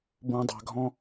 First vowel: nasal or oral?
nasal